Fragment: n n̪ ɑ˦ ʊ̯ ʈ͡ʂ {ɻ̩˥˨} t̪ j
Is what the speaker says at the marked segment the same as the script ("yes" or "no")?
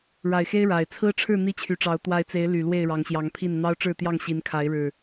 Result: yes